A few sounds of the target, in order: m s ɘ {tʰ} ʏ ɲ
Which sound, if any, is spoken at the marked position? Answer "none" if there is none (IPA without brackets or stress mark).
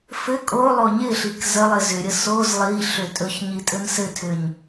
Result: tʰ